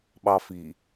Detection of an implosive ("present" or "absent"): present